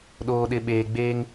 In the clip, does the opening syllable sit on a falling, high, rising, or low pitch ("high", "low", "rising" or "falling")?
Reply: low